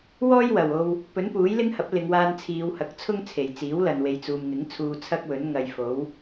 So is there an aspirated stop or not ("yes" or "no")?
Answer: yes